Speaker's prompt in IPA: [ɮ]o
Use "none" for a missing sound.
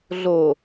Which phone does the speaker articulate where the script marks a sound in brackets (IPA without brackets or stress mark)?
ɮ